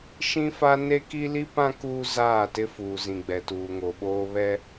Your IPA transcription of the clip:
ʃ ĩ˦ f a˦ n e˦ k i˦ l i˦ p ã˦ k uː˦ z aː˦˨ t ɪ˦ f uː˨ z ĩ˨ ɡ͡b ɛ˨ t uː˨ ŋ o˨ ɓ oː˦ β ɛ˦

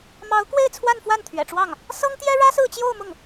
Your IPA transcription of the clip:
m ɑ˧˥ ʊ̯ k w e˥˧ ɪ̯ t͡sʰ w a˥˧ n f w a˥˩ n t̪ʰ ɥ ɛ̰˨˩ ʈ͡ʂ w ɑ˥˩ ŋ | s ɤ˥ ŋ t̪ j ɛ˥ ɻ ä˥ s ɹ̩˥˧ t͡ɕ j o˥˧ ʊ̯ m ʊ˥˩ ŋ

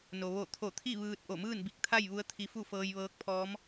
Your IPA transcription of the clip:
n o˩ ʋ o˧˩ t̪ʰ o˧˩ t̪ʰ i˥˨ ʋ ɯː˧ t̚ ʔ o˧˩ m ɯː˥˨ n b i˧˩ k̚ t̪ʰ a˥˨ j ʋ u˧˥ ə̯ t̪ʰ i˧ f u˥˨ f ɤː˧ j ʋ ɤː˧˥ k̚ pʰ ɔː˧˥ m

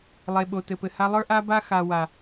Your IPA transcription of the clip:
lˠ e˨ ɓ o˨ t ɘ˨ p ɘ˨ h a˦ lˠ ə˞˦ ʔ a˦ b a˦ x a˨ w a˨

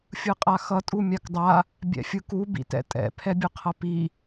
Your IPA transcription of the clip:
fʲ ɯ qʼ a x ʌ tʼ u mʲ a k dˤ a | bʲ ɛ̰ fʲ ɯ k u b ḭ t ɛ̰ tʼ ɛ̰ pʰ ɛ bʲ ɯ qʰ ʌ p i

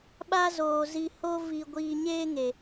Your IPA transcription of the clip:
ɓ a˦ z oː˨ z i˧ h o˦ v i˧ ɡʷ iː˧ ɲ eː˦ ŋ e˨

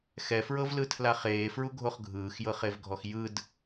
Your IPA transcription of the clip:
x ɛ f ɹ ɤ v l ɯ tʰ l a χ eː f ɹ u ɡʱ o χ ɡʱ ɯː x j ɤ χ e v ɡʱ ɔ x j ɯ d

